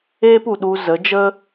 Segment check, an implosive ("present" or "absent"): present